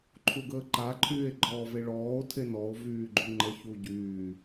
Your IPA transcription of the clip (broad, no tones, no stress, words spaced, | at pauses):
ǃʰuɡəːǃa ǃʰyːe̯ɡ͡ǃɔːveɭɔːo̯ tʰenɔo̯ vyːɡ͡ǃuŋ͡ǃə çuɟyː